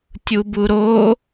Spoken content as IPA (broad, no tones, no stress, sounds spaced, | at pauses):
tʲ u b u ɾ o